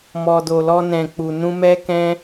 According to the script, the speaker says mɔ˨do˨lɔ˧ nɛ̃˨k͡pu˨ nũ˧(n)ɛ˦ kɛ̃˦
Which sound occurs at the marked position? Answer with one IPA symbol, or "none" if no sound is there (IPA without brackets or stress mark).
m